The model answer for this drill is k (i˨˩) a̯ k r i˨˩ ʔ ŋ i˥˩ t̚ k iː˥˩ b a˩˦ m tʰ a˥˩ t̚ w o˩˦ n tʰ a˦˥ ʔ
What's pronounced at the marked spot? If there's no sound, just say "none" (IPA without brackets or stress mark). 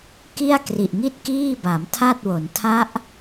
i˥˩